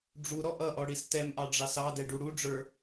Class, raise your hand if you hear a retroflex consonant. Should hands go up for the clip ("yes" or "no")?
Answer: yes